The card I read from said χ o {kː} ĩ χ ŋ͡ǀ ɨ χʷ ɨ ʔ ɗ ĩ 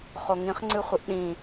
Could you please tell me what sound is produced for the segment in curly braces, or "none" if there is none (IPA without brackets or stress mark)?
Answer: ŋ